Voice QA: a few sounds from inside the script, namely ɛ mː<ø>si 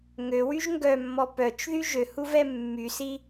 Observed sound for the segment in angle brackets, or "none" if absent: y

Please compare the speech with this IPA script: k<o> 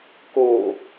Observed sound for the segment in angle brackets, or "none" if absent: o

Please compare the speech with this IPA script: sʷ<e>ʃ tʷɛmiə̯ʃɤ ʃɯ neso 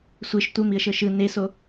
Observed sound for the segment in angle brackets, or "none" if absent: e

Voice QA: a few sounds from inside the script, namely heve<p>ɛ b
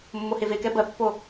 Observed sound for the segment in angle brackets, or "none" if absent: k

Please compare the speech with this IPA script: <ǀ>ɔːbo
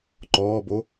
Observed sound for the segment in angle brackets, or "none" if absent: ǃ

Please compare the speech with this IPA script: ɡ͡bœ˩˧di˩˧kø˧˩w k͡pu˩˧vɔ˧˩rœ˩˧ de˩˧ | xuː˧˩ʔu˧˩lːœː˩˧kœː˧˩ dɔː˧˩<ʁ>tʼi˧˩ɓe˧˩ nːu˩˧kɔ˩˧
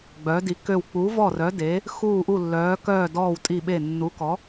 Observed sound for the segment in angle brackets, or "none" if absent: w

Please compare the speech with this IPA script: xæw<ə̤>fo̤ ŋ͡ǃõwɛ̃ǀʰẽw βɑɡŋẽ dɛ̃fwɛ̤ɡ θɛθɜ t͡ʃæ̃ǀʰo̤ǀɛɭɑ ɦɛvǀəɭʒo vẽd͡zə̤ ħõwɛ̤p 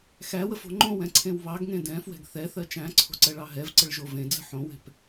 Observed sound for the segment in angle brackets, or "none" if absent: ə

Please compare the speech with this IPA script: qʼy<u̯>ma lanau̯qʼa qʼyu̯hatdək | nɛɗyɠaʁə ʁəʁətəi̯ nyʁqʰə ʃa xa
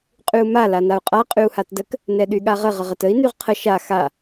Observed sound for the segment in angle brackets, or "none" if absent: u̯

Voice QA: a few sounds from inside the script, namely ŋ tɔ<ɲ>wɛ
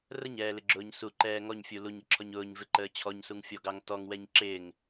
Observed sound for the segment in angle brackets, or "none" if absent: ŋ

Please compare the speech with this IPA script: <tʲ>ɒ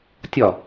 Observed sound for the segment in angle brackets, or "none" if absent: tʲ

